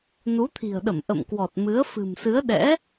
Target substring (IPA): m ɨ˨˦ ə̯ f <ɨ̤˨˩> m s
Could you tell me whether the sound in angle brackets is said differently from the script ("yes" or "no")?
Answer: no